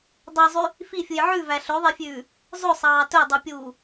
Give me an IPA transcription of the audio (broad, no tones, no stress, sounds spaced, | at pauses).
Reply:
dˤ ɛ zˤ y | f i fʲ u j ʕ ʉ v æ ɬ ɵ ðˤ e fʲ ʉː | zˤ ɵ sˤ ɑː t ɵ dˤ ʉ pʲ uː